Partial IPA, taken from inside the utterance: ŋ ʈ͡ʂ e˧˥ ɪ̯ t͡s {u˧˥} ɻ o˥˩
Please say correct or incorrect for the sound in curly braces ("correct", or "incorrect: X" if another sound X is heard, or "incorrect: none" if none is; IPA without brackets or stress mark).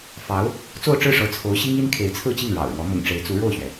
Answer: correct